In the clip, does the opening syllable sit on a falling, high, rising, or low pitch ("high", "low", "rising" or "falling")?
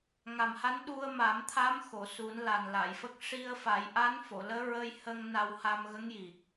low